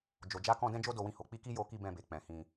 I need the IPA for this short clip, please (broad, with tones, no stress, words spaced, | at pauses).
d͡ʒo˨d͡ʒa˨˦kɔ̃˧ dɛ̃˦d͡ʒo˦do˧wĩ˧ ho˨k͡pi˧ki˦ jo˦ki˦bɛ̃˦˨be˨ k͡pɛ̃˨hĩ˧